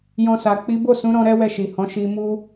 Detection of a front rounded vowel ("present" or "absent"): absent